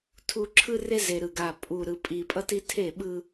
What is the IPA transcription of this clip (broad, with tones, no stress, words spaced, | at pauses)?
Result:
tʰu˨ ǁʰɯ˦re˦ ze˨ɾɯ˨ɡa˨ pʼu˨ ɾɯ˨ pʼi˨pʼʌ˦ti˦ tʰe˦˨ɓɯ˦